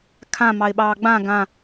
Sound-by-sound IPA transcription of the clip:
kʰã mɑɪ̯ɓɑːɡ͡bã ɡã

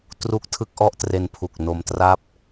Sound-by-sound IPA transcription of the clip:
tru˥˩k̚tʰɯ˥˩k̚ ʔɔ˥˩ʔtre˧npʰu˨˩k̚ no˧mtra˥˩p̚

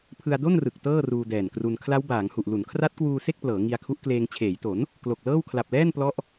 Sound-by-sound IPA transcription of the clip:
pʰɯ˧a̯do˥˩nrɯ˨˩k̚ tɤː˥˩ruː˧dɛː˨˩nkru˧n kʰla˦˥wbaː˩˦ŋhu˨˩ʔ lu˩˦nkʰra˦˥t̚kwuː˧ se˥˩k̚plɤː˩˦ ŋi˧a̯kʰu˦˥ʔkleː˧ŋ t͡ɕʰeː˩˦jto˩˦n | klo˨˩k̚lɤː˥˩w kʰla˨˩p̚lɛː˥˩n plɔ˦˥ʔ

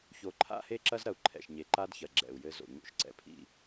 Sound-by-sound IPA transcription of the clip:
ço˨ǃʰa̰˦he˦ǁɐ˦z ɾɐ˨u̯ǃʰɛ̰˨ʃ ɲe˨ ǃa˦dçɐ˨ ɡ͡ǁɛ̰˨u̯jɘ˦zo̰˨ ɲo̰˦ʃǀɛ̰˨pʰḭ˦˨

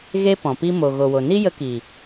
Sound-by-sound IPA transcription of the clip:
ɣe˧ pɔ̃˨pi˦ mo˨ ɣo˨wo˨ ni˦jə˧ki˨

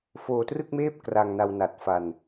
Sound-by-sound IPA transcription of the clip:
foː˧trɯ˥˩k̚meː˥˩p̚ kra˧ŋna˧wna˨˩t̚ fa˧n

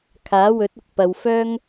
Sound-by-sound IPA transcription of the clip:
kʰaː˨˥wɵ˨˥t̚ ʊ˧k̚pɐ˨wfœː˥ŋ

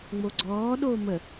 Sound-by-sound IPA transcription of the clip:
ŋ͡moɡ͡ǀɔː ɗoːmə

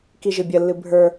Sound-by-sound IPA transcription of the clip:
kiʒɨbʲəlːɨ bʱə˞

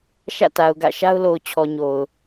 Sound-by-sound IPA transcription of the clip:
ʃä̰˦˨ta˨ʊ̯ɡä̰˦˨ ʃa˦ʊ̯lo˨ʊ̯t͡ɕʰɔ˨ ɲo˨ʊ̯

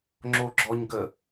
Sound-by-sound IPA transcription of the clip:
ŋ͡ǁoɡ͡ǁɔɲɡə

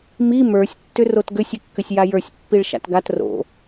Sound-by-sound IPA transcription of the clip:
mi mə˞sʲ tːʏrotɡʏsʲ ʏkːʏsʲjajə˞sʲ pːiɭʃa̰tɡat ro̰

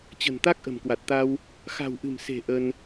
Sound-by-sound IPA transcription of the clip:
t͡ɕə̤˨˩nt̪a˦˥k̚ ʔə̤˨˩mkwa˨˩t̚t̪a˧w | xa̤˨˩wʔɨ̤˨˩mse̤˨˩ ʔə˧n

